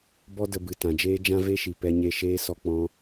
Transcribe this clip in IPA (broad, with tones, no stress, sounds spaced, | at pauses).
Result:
b ɔ˦ d ə˧ b ɨ˨ t ã˨ d͡ʒ eː˦ d͡ʒ ã˦ v e˦ ʃ i˨ p ɛ˧ ɲ e˧ ʃ eː˦ s ɔ˧ k͡p ɔ̃˧